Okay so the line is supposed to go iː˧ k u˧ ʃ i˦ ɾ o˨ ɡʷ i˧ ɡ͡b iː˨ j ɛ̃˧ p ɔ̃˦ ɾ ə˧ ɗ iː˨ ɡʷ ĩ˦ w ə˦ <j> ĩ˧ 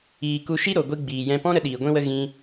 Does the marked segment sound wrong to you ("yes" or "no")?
yes